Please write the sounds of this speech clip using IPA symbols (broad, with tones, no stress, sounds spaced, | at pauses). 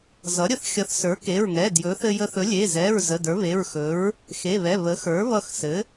z ʌ˩˥ ɾʲ ə˩˥ θ xʲ ʌ˩˥ θ s ə˞˩˥ k e˩˧˩ ɹ ŋ ɛ˩˧˩ d j ɵ˩˥ θ ɘ˧ j ə˧ θ ɵ˩˥ lʲ e˩˧˩ z ɛ˩˧˩ ɹ z ə˩˧˩ d ə˞˩˥ β e˩˧˩ ɹ x ɵ˩˥ ɹ | x e˩˧˩ β ɛ˩˧˩ β ə˩˥ x ə˞˩˥ β ʌ˧ x s ɘ˩˥